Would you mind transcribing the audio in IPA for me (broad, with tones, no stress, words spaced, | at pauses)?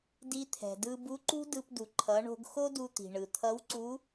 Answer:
di˧t̪ʰɛ̤˩dɯ˧ bu˧˥ǃṳ˥dɯ˧pdu˩ ǃʰʌ˩˧ɳo̤˧ɡ xo˥du˧t̪i̤˩ ɳɯ˩t̪ʰʌ˧˥wǀu˧˥